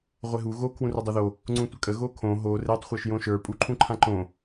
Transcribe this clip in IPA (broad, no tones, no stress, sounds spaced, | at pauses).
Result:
ʁʷ e ɦ u ɣ o kʰ w ũ r ø dˤ o ð o | ŋ͡ǀ ũ tʷ ə kʼ ə ɣ o kʰ õ ɦ o r e tˤ χʷ ə˞ ʃ j õ ʃ ə˞ pʼ u ǃʰ ũ ǃʰ ã ǃ õ